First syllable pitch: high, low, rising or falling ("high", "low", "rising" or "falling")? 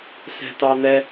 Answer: high